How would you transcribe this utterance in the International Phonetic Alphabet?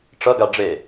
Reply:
ʈ͡ʂ ʌ ɡ a ɖ͡ʐ e

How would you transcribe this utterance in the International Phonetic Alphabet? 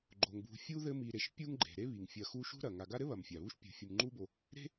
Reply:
ɡ͡ǃ o˩ ŋ b ṳ˨ fʲ u˥ ð ɘ˦ m i˨ ɾ e˨ ʃ pʲ u˥ ŋ ɡ͡ǃ e̤˩ ɾ e˥ β i˩ ŋ fʲ ɐ˨ x u˦ ʃ ṳ˦ ɾ ɐ˩ ŋ a˨ ɡ a˦ ɾ ɘ˥ β ɐ˩ m fʲ a˩ β u˥ ʃ pʲ ṳ˨ fʲ u˨ m ŋ͡ǃ u˥ b o˨ | ɾ e̤˦

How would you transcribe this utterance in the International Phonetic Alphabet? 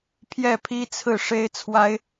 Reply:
pʰ j ɛ˥˩ pʰ i˥ t͡sʰ ɹ̩˥˩ ʂ e˥ ɪ̯ t͡sʰ w a˥ ɪ̯

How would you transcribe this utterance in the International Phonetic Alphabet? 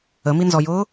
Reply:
ə m i n z ɔ j ʊː

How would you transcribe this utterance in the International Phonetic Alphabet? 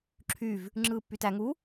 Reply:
ǁʰ y v | ŋ͡ǁ ɯː pː y t æ ŋ u

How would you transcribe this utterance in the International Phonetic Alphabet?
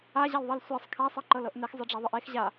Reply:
a ʑ a l ðˤ ɤ l sʷ ɛ sˤ kʰ a sˤ ɤ ǃ ɤ l ɤ ʔ n ɛ x zˤ ɯ ɖ͡ʐ a ðˤ ɯ ʔ e x ʑ a

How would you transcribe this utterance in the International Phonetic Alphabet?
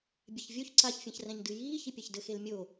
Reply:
bʲ ɛ ç vʲ o ç ǀ a ç fʲ ɐ̃ ç r ɛ̃ ɲ d ɨ j iː ç i pʲ a ç d ɘ x e l mʲ o

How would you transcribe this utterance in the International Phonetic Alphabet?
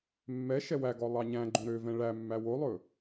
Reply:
mː ɛ ʃ ɛ w æ ɡ ɔ lˠ ɑ ɲ æ̃ ɡ͡ǃ õ ɾ ø v ɛ̃ ɭ æ mː æ w o lˠ ɵ

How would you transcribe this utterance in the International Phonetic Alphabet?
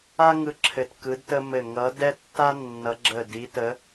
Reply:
a˥ ŋ ɯ˥ ǁʰ ɘ˦˨ t k ɯ˧˥ d t ə˥ m ɘ˦˨ ŋ ʌ˧˥ d ɛ˥ tː a˥ nː ʌ˧˥ ɡ͡ǁ ə˦˨ d i˧˥ t ə˧˥

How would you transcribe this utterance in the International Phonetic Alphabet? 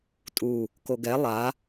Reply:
tʼ u | k o ɡ ɛ lˠ a

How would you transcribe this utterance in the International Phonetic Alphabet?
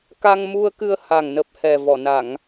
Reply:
k a˧ ŋ m u˧ ə̯ k ɨ˧ ə̯ h a˨˩ ŋ n ə˨˩ p̚ h ɛ˨˩ v ɔ˧˩ n a˧˩˨ ŋ

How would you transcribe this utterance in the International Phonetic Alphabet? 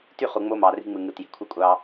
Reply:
t y˦˨ χ u˨ ŋ͡m o˦ m ɑ˨ r i̤˦ ŋ͡m ɯ˨ ŋ ɯ˨ t j e̤˨ kʷʰ ɯ˦ kʷʼ ɑ˦

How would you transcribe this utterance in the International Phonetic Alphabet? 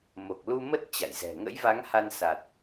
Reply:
m o˨˩ k̚ l u˧ m ə˦˥ t̚ t͡ɕ a̰˧˨ j z ɛ̤˨˩ ŋ ə̰˧˥ j v a˨˦ ŋ h a˧ n s a˨˩ t̚

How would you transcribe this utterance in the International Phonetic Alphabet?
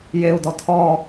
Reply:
j e u̯ d ɔ tʰ ɔ

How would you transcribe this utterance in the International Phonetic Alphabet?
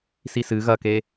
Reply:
s i s ɨ ɣ ɐ k e

